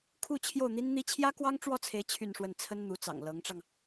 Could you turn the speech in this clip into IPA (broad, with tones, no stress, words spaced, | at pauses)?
kʰu˥˧ t͡ɕʰjo˥˩ʊ̯n̪i˥nn̪i˥ t͡ɕʰjä˥kwɑ˥ŋʈ͡ʂwɔ˥˩t͡sʰe˧˥ɪ̯ t͡ɕʰy˥˧nʂwə˥˩n t͡sʰə˥nn̪u˧˥t͡sɑ̰˨˩ŋ lɤ˧˥ŋʈ͡ʂɑ˧ŋ